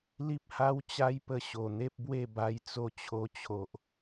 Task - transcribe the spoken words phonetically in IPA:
li˦p̚ha˦wt͡ɕa˦jpə˧ ɕo˨˩n̪e˦p̚bwe˥˧ba˧j t͡so˧t͡ɕʰo˧t͡ɕʰo˨ʔ

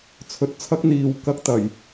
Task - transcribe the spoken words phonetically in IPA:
t͡sʰɵ˨˥t̚t͡sʰɐ˥k̚ n̪iː˨wkɐ˥k̚t̪ɐ˨˩j

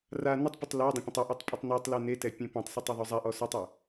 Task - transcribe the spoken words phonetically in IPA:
ra nətˤpʏtˤ la dˤə̃pʲə̃tˤɔʔɔtˤ pʼʏtˤnɛtˤlɛ netɛ pʲẽpẽtˤsɛtˤ ɛðˤʉzˤaʔɔ sʏtˤɛ

